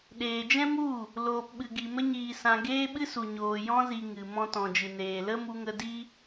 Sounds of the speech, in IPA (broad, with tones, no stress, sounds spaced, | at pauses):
ɗ eː˨ d͡ʒ ɛ̃˦ m u˦˨ | l oː˨ p ɓ ɨ˨ ɡ i˨ m ə˧ ɲ iː˨ s ã˨ ɡ eː˦ ɓ ɨ˦ s u˨ ɲ oː˨ j ɔ̃˧ z i˨ ŋ ɨ˨ m ɔ̃˧ t ɔ̃˨ d͡ʒ ɨ˨ n eː˨ l ə˦ m u˧ ŋ ə˧ d i˦